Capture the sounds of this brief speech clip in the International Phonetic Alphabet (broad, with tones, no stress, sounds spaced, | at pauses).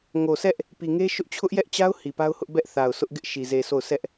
ŋ o˨ sʰ ɛ˦ ʔ | p i˨ ŋ e˦ ʃ ʊ˦ ʔ t͡ɕʰ ʊ˦ ʔ j ɛ˦ ʔ t͡ɕ a˦ ʊ̯ h i˨ p a˦ ʊ̯ h ʊ˦ ʔ b ɛ˦ ʔ θ a˨ ʊ̯ s ʊ˦ ʔ ɡ ɪ˦ ʔ ʃ i˨ z e˨ sʰ o˦˨ ʊ̯ sʰ ɛ˦ ʔ